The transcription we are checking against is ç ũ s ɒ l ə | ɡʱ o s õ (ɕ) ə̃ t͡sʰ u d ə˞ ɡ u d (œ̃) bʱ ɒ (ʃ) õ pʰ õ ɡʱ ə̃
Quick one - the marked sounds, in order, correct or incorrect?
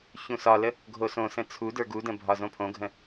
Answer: incorrect: s, incorrect: ə̃, incorrect: z

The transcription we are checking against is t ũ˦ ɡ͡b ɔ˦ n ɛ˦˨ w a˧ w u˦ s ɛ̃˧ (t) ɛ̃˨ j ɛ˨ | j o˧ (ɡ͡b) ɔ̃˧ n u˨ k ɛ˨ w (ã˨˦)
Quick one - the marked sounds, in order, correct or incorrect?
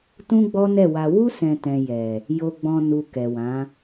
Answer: correct, correct, correct

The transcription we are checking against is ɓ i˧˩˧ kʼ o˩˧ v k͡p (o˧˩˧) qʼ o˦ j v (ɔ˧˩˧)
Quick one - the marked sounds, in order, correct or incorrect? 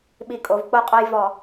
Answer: incorrect: o˥˩, correct

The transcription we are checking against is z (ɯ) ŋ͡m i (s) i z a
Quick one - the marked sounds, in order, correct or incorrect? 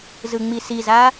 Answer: correct, correct

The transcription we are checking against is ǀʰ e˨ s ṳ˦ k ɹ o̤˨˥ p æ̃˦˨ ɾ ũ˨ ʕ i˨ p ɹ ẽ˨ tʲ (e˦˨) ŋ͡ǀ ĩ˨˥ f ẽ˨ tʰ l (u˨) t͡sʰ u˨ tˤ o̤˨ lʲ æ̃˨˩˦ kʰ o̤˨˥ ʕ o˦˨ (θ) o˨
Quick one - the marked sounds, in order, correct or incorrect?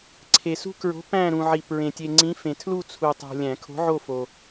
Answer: incorrect: e˨, incorrect: u˦˨, incorrect: f

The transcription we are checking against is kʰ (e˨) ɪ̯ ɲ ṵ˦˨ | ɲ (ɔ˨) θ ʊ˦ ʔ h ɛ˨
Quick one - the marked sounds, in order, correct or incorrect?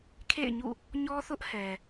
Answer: incorrect: ḛ˦˨, incorrect: ɔ˦

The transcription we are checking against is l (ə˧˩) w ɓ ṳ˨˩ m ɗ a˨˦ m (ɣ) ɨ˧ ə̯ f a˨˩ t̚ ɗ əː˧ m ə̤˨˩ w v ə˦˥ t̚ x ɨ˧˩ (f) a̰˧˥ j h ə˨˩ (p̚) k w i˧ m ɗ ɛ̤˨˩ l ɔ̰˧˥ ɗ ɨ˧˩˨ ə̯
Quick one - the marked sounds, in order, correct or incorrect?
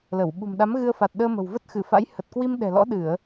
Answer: correct, correct, correct, incorrect: t̚

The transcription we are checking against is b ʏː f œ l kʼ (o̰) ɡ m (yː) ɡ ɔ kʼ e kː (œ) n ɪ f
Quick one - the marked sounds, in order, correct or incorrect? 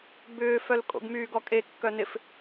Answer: correct, correct, correct

